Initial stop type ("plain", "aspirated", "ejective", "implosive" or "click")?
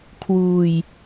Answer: aspirated